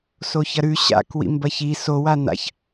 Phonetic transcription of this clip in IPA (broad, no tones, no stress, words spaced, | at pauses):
soçɐɾʉ ɕa̰k wḭmbɐçi sowa na̰ç